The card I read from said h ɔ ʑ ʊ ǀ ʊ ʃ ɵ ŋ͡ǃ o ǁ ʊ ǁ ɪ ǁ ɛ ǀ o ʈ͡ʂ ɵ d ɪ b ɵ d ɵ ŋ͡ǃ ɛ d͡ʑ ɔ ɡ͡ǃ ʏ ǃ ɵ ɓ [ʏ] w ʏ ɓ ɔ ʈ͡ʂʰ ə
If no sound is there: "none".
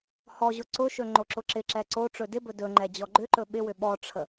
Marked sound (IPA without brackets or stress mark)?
ɪ